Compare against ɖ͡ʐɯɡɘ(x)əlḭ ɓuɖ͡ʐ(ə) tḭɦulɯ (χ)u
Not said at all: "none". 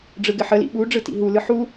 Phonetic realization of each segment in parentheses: ħ, ɯ, ħ

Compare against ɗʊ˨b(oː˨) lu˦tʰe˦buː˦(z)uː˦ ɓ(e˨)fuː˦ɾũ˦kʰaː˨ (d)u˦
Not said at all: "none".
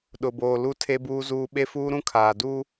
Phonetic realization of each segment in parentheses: oː˨, z, e˦, d

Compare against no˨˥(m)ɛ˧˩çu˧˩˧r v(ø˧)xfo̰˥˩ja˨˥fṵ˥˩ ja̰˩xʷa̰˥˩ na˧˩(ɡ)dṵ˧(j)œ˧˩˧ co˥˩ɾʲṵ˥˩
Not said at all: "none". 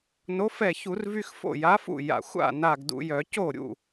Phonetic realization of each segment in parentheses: f, y˧, ɡ, j

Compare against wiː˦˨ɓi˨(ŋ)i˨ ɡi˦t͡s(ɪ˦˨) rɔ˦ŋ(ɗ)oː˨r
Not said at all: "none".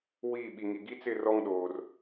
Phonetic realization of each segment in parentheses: ŋ, ɪ˦˨, ɗ

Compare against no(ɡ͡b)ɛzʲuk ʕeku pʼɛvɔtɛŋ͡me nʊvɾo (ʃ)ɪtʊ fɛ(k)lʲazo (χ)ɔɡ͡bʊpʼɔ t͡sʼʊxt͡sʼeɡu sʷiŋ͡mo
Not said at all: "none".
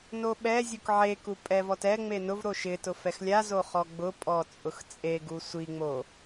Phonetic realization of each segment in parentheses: ɓ, ʃ, x, χ

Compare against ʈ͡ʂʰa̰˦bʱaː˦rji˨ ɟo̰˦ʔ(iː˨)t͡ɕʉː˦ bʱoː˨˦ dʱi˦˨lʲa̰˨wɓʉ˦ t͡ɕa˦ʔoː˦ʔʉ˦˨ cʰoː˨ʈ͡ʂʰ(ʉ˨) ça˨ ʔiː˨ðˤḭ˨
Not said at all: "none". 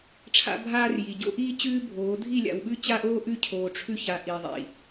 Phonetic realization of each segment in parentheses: iː˦, ʉ˦

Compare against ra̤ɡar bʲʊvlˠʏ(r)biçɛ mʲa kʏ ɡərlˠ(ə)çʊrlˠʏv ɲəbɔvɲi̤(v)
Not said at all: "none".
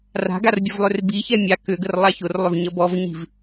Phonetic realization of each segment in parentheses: r, a, v

